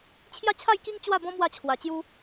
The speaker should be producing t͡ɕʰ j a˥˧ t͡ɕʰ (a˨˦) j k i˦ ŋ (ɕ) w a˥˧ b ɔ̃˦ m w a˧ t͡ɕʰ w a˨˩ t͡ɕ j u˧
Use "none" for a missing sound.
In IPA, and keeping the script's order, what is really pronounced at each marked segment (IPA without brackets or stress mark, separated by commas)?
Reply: a˥˧, t͡ɕ